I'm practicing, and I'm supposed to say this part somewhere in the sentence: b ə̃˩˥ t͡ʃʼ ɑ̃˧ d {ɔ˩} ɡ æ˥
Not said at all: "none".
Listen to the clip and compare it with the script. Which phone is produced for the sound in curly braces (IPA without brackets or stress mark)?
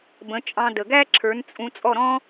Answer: ə˩